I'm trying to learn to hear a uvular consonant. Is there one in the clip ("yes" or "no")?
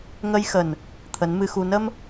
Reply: no